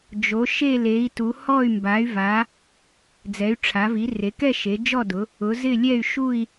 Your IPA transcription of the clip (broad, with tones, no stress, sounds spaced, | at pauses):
d͡ʒ o˩˧ ʃ e˦˨ l e˩˧ i̯ t u˩˧ h ɔ˦˨ y̯ m b a˩˧ y̯ v a˩˧ | d͡z ɛ˩˧ y̯ ʈ͡ʂʰ a˩˧ v i˩˧ r e˩˧ k ɛ˦˨ ʃ e˩˧ d͡ʒ ɔ˦˨ d ʊ˩˧ | ʊ˩˧ z ɪ˦˨ lʲ ɛ˦˨ y̯ ʃ u˦˨ i̯